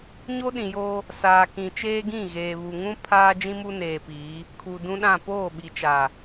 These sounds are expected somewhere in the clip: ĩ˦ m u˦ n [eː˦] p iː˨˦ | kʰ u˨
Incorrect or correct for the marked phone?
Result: incorrect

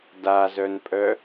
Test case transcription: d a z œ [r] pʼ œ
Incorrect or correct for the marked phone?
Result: incorrect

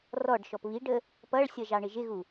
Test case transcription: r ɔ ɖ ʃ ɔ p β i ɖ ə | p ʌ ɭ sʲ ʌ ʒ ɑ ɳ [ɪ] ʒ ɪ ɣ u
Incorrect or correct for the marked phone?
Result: correct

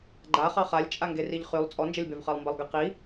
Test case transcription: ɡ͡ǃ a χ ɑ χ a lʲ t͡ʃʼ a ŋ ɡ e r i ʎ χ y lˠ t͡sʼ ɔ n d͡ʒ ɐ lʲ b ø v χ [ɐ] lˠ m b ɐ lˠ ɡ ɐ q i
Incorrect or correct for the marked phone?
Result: incorrect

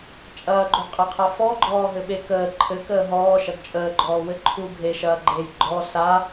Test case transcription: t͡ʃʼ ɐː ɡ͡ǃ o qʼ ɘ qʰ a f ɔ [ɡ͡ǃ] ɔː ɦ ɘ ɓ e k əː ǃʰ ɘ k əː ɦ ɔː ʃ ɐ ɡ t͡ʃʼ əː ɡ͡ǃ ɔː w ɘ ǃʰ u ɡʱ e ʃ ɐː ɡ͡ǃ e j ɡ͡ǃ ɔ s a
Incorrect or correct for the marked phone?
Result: correct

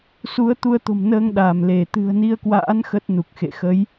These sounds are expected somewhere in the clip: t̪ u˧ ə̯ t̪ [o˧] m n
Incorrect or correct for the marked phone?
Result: incorrect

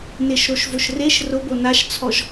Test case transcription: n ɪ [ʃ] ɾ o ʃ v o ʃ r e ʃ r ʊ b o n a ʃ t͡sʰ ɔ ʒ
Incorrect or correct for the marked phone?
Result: correct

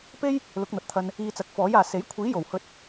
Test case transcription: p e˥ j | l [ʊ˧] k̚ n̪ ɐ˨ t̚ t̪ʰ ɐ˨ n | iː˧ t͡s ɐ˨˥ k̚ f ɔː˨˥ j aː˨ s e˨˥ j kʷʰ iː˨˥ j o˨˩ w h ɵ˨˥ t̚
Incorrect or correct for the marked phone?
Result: incorrect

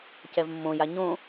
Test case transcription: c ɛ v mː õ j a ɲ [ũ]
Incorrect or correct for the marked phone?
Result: incorrect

